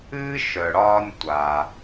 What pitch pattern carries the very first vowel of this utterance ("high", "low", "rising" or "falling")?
high